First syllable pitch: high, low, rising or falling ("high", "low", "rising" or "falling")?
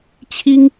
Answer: high